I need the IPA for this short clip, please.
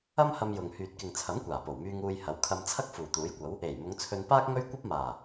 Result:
ɐ˥ m h ɐ˧ m j ʊ˨ ŋ h yː˨ t̚ k ɪ˨ ŋ t͡sʰ ɐ˨˥ m kʷ aː˨˩ p o˨˩ w m yː˧ ŋ uː˨ j h ɐ˨˥ w kʰ ɐ˧ m t͡sʰ ɐ˥ k̚ f uː˨˩ t̪ uː˨˥ j kʷ ɐ˨˥ w | e˨˩ j m ʊ˨˧ ŋ t͡sʰ ɵ˧ n p aː˥ k̚ ŋ ɵ˥ ɥ kʷ ɐ˥ p̚ m aː˨˩

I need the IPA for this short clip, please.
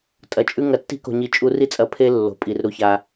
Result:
tʼ ɐ˨ t͡ʃʼ ʉ˦ ŋ ɐ˨ tː i̤˦ k o̤˨ ɲ i˨ t͡ʃʼ u˧ r i˦ t͡sʼ ɐ˧ pʰ e˦ lː o̤˨ pʼ i˨ r ɾ u˧ ç a˧

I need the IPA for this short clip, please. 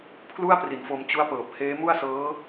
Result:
pʰ l u˥˩ a̯ p r i˨˩ n f o˧ m t͡ɕ u˦˥ a̯ p ɤː˨˩ p̚ h eː˦˥ m u˥˩ a̯ s ɤː˦˥

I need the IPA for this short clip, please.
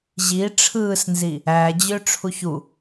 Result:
ʑ i ʈ͡ʂʰ ɯː s n z i | æ d͡ʑ ø ʈ͡ʂʰ u ç u

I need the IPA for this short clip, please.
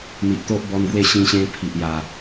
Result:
n̪ i˨ ʔ t̪ o˦ ʔ b ɔ˧ n ɡ w e˥˧ ɕ ĩ˧ ɕ ẽ˧ pʰ i˨ ʔ j a˨˩

